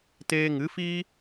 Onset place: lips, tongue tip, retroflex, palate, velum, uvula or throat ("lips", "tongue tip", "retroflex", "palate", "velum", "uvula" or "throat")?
tongue tip